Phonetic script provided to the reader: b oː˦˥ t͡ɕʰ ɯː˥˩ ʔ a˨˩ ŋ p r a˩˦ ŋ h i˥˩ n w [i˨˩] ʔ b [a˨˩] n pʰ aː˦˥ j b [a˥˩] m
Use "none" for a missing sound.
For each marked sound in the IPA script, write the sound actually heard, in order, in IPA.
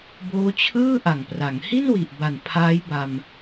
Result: i˨˩, a˨˩, a˧

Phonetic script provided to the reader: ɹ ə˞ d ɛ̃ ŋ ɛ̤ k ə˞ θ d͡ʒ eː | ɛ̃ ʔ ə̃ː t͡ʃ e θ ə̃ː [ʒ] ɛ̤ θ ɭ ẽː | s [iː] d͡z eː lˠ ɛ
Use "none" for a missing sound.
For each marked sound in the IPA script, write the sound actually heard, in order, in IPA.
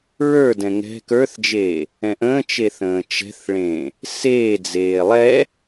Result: t͡ʃ, eː

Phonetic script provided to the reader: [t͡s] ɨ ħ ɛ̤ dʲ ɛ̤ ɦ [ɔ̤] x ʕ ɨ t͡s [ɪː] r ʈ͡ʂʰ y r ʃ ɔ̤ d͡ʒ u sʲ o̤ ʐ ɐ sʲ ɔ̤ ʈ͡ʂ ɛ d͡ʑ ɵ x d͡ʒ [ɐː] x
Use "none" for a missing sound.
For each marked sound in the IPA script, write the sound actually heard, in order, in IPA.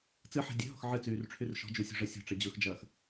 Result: t͡s, ɔ̤, yː, ɐː

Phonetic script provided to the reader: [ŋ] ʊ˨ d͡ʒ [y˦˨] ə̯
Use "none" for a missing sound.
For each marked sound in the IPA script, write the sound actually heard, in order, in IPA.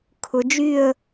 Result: kʰ, y˦˨

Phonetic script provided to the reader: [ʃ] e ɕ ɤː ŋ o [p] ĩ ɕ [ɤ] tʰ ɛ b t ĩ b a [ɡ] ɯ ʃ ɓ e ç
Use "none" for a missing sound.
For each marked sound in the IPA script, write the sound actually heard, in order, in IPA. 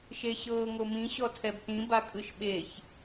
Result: ʃ, m, ɔ, kʼ

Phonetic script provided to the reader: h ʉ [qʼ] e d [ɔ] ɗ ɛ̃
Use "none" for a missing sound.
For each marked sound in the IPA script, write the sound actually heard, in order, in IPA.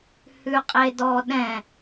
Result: qʼ, ɔ

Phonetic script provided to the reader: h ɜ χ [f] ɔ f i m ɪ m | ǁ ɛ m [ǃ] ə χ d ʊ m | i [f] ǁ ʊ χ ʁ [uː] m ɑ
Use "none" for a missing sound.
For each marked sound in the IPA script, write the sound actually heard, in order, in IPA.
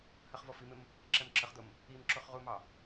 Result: v, ǁ, m, u

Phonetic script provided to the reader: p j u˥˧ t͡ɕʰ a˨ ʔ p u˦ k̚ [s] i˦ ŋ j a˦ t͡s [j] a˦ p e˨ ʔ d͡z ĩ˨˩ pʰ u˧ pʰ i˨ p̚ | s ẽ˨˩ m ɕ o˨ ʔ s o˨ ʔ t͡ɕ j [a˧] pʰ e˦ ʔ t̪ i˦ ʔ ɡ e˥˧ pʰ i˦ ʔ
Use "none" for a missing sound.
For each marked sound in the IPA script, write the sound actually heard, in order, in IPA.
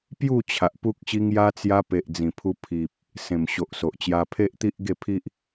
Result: ɕ, j, a˧

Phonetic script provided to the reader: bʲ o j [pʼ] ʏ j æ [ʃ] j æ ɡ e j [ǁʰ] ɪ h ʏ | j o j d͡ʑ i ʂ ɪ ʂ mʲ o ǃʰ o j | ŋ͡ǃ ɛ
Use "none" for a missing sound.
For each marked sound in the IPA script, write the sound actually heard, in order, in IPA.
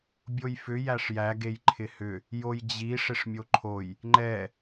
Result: f, ʂ, ǃʰ

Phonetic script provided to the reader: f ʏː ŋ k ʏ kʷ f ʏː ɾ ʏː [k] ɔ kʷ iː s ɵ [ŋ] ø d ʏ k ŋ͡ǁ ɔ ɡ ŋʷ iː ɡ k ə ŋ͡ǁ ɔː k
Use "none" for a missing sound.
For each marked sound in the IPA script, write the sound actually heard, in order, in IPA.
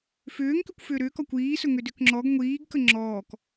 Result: k, ŋ

